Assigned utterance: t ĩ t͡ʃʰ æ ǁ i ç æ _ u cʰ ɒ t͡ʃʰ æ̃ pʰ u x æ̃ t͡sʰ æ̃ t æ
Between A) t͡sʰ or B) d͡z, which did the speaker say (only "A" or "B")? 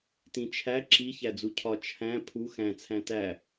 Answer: B